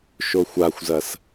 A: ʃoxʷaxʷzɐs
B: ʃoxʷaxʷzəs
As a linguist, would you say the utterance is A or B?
A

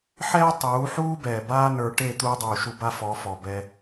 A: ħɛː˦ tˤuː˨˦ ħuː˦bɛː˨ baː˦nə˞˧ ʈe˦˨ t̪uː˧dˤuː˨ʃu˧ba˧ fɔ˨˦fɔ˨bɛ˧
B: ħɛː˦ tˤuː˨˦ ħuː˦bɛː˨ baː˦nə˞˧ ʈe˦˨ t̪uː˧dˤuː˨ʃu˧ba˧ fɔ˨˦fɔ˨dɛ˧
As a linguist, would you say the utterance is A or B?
A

